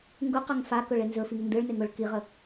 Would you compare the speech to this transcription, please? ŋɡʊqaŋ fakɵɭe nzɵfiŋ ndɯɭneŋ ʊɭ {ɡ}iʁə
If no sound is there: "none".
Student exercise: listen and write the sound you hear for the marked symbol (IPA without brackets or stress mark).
k